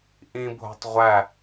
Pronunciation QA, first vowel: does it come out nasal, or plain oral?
nasal